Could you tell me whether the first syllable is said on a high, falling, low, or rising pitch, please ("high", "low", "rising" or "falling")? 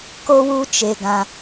high